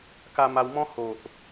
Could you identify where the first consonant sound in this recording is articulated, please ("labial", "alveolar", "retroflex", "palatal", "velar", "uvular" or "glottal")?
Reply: velar